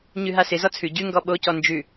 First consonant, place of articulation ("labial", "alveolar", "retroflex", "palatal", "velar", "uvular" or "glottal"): palatal